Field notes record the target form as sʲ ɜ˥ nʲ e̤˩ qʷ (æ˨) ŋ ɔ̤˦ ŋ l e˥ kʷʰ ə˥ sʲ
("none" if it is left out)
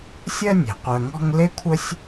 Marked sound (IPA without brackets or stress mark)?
œ˨